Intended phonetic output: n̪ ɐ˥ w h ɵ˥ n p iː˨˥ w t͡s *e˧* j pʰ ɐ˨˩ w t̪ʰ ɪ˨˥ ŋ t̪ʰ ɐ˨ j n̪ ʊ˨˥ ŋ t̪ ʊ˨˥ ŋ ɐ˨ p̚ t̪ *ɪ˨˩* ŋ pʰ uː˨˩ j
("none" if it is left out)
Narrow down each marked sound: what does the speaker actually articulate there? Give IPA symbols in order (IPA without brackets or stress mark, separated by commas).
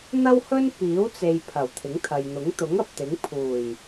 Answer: e˧, ɪ˨˥